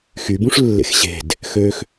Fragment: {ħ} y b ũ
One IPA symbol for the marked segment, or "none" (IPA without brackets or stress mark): x